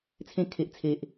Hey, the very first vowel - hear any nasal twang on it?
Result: yes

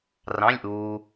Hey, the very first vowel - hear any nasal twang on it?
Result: yes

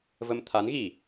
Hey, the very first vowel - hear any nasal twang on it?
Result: no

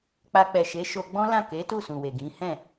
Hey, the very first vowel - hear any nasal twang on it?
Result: no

